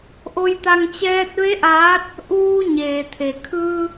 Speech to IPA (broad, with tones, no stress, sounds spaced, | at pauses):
ʔ o˧ j t̪ a˧ ŋ t͡ɕ ɛː˧ t̚ ʋ e˧˥ ʔ aː˧˥ t̚ | ʔ uː˧ ɲ eː˩ t̪ʰ e˩ kʰ ɯː˧